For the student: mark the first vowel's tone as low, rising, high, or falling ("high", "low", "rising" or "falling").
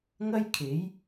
high